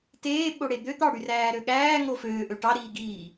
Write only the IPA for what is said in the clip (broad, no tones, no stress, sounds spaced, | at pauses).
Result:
t eː ɓ o ɽ e d̪ ø t̪ ɑ ɽ y r æː ɾ ø ɠ æː ŋ o f øː ʔ ø ʈ ɑ ɾ iː ɡ iː